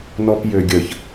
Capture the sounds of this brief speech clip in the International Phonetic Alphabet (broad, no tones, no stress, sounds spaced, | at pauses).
n ɔ p j ø ɡʲ ə ç